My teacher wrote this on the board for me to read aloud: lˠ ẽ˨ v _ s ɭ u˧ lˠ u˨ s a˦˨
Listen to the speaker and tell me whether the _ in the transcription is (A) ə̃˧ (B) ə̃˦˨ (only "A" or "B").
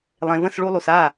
B